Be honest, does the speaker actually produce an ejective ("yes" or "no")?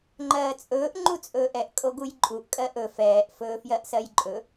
yes